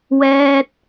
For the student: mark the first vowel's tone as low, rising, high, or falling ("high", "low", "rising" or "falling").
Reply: high